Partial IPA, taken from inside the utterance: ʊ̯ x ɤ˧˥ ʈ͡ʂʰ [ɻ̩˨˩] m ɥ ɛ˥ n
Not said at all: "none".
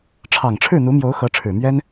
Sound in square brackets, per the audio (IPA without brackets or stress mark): ɻ̩˨˩